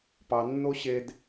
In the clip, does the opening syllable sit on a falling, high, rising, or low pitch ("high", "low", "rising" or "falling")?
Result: low